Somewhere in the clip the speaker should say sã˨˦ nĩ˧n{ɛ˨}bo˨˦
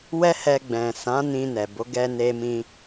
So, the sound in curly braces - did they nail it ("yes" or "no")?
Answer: yes